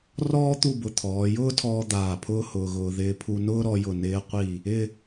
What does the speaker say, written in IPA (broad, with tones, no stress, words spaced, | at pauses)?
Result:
rɔː˥ t̪u˥˧bʊ˧ t̪ʰɔː˩˧jʊː˥tʰɔː˧ d̪aː˧˩pʰʊː˥hʊː˧ɣʊː˧ ðɪː˧pʰu˧nʊː˥ ɾɔ˧jʊ˧˩ nɪː˧qʷi˧˩ | ɪ˥˧